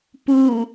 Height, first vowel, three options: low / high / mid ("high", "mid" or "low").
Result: high